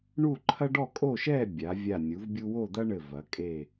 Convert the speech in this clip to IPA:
ɳ u˥˧ ǃʰ ɐ˥ ɖ ɔ˥˧ kʼ o˥˧ ʃ ɛ˥˧ bʲ a˩˧ vʲ a˧˩ nʲ u˩˧ v bʲ u˧ w o˥˧ d̪ ɐ˥ ɳ ɘ˧˩ v ɐ˩˧ kʼ e˧˩

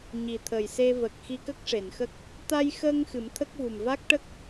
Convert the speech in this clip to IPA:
ɲ i˨˩ t̪ʰ ə˨˩ j s e˧ v ə˨˩ k̚ x i˧ k ə˦˥ k̚ ʂ e˨˩˨ n x ə˦˥ k̚ | t̪ a˧ j x əː˧ ŋ x ɨ˨˩˦ m t̪ʰ ə˦˥ k̚ v u˨˩ m v a˦˥ k̚ ʈ ə˦˥ k̚

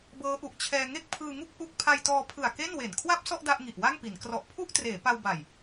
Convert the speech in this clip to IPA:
b ɤː˦˥ ʔ u˨˩ ʔ t͡ɕʰ ɛː˧ ŋ e˥˩ k̚ pʰ ɯː˧ ŋ u˥˩ k̚ ʔ u˥˩ k̚ pʰ a˧ j t ɔː˧ pʰ ɯ˨˩ a̯ k e˥˩ n w e˨˩ n kʰ w a˥˩ p̚ s ɔ˥˩ ʔ d a˥˩ ʔ ŋ i˨˩ ʔ w a˥˩ ŋ p i˩˦ n k r ɔ˨˩ ʔ pʰ u˥˩ ʔ t r eː˩˦ p a˧ w b a˨˩ j

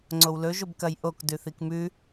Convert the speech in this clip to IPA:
ŋ͡ǀ o w l ɵ ʒ o b k ɐ j ʔ o k d ʉ θ i k m ʉ

